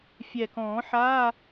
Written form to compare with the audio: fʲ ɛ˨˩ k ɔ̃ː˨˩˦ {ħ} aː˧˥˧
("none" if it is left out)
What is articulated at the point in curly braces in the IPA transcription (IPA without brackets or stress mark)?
ħ